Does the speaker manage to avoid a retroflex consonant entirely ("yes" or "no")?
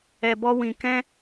yes